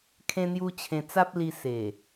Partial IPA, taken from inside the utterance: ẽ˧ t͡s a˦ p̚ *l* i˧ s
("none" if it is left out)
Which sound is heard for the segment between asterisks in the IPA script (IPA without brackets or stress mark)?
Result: l